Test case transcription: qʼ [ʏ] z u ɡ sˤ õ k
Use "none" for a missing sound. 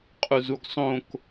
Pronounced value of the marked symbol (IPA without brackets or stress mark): u